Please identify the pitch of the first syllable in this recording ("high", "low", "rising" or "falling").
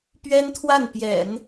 high